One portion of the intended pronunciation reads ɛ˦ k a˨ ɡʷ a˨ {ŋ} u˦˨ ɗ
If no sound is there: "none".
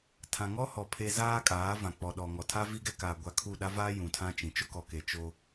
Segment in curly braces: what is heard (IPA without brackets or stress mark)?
kʰ